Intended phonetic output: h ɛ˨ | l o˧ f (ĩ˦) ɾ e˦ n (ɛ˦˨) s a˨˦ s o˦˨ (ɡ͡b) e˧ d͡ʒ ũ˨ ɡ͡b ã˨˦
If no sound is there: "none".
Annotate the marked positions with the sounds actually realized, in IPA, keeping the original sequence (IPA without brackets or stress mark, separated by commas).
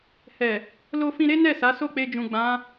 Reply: ĩ˧, ɛ˦˨, k͡p